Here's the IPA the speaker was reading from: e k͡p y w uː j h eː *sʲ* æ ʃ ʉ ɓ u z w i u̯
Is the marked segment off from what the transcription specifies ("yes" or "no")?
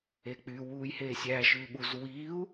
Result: no